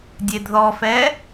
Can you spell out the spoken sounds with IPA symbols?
dʲ e d ð ɔ f ɛ

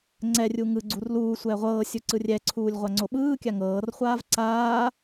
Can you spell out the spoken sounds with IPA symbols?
ŋ͡ǀ ɛ rʲ u ŋ ɯ ɡ͡ǀ u r l uː sʷ ɛː ʁʷ ɤː sʲ u ǀ ɯ rʲ ɛ ǀʰ uː lʲ ʁʷ a ŋ͡ǀ o ɓ ɯː kʲ a ŋ ɤː r χʷ aː v ǀ aː

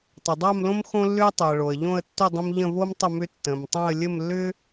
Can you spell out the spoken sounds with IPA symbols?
tˤ ʏ˩ dˤ a˥˧ m l õ˥ m x õ˥ lː ʏ˥ ə̯ tˤ ʏ˩ ə̯ ɭ o˩ ə̯ ʎ õ˥˧ ə̯ tː ʏ˥˧ dˤ ə̃˥ m ʎ ə̃˥˧ v o˥ m tˤ ə˥˧ m ʏ˥ tː ə̃˩ m tˤ õ˥˧ ə̯ lʲ ə˥˧ m lː ʏ˥

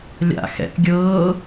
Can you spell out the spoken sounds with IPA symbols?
lʲ a̰ x ɛ̰ ʔ ɡʲ ɤː

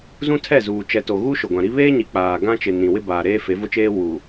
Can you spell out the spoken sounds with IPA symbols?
z ũ˦ tʰ ɛ˦˨ z uː˨ t͡ʃ ɛ˨ t o˨ ɣ u˦ ʃ ʊ˨ ɡʷ ã˨ ɾ i˦ β eː˦ ɲ i˨ k͡p aː˨ ɡ ã˦ t͡ʃ ɪ˨ n ĩ˨ w ɪ˦ b aː˨ ɾ eː˦ f e˨˦ v ʊ˦ t͡ʃ eː˦ w u˨

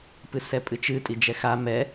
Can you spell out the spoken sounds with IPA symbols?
p ɨ s ɛ pʼ ɨ t͡ʃ ɨ tʼ i d͡ʒ ɛ x a m ɛ

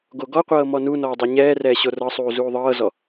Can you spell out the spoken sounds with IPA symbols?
ɡ o ɡ ɔ qʷ ɤː m ɔ n u n ɔː dˤ e ɲ ɛː r ɛː ɕ o r ɤ sˤ uː z uː ðˤ ɤː z ɔ

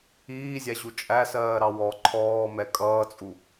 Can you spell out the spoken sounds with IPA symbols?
iː zʲ æ ʑ u t͡ʃʼ æ s ɜː ɾ ɑ w ɔ ǃʰ ɔː m ɛ kʼ ʌː t͡sʼ u

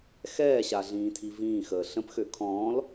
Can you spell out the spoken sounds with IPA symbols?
x ɛː ɕ a ɮ ĩː tʰ i v ĩː x əː ɬ ə̃ p x ø kʰ ɔ̃ː l

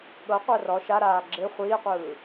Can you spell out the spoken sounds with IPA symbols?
ɠ ɤ qʷ ɜ r ɔ ʃ a ɾ aː ɡ͡ǁ e χʷ iː qʷ ɯː

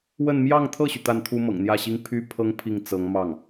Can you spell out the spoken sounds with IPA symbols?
w ə˥˧ n m j ɑ˥˧ ŋ t̪ʰ ɤ˥˩ ɕ y˩ t̪ a˥˩ n t̪ʰ u˥ m ɤ̰˨˩ ŋ n̪ j ä˥˩ ɕ i˥ ŋ pʰ y˥˩ pʰ ɤ˥ ŋ pʰ i˥˩ ŋ t͡s ɤ˧˥ ŋ m ɑ˥˩ ŋ

